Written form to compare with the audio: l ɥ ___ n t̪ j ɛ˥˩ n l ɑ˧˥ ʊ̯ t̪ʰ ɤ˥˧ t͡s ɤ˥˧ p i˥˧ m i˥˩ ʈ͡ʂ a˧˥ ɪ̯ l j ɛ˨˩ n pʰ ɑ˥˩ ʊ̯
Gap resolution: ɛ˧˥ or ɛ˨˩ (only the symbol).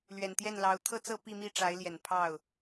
ɛ˨˩